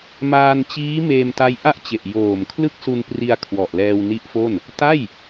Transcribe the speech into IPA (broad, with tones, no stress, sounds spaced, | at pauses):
m aː˧ n t͡ɕ iː˦˥ m eː˧ m t a˦˥ j ʔ a˥˩ ʔ t͡ɕ e˨˩ ʔ j oː˨˩ m kʰ l ɯ˥˩ k̚ s u˧ n p r i˧ a̯ kʰ w ɔ˨˩ ʔ l ɛː˧ w n i˦˥ ʔ f o˥˩ n | t a˥˩ j